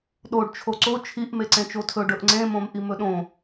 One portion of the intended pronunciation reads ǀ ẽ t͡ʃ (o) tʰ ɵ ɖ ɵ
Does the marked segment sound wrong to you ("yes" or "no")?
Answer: no